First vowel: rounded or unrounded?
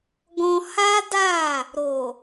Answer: rounded